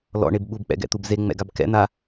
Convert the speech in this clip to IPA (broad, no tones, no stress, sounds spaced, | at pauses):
l ɔ̰ ɳ e b ɓ u b k͡p ɛ̰ ɡ ɛ̰ t̪ u b z e ŋ͡m ɛ̰ ɡ a b k ɛ̰ n̪ a